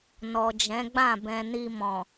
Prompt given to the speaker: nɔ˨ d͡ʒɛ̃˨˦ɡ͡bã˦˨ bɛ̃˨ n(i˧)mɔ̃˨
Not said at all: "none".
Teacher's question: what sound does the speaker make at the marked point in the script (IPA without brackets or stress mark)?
i˧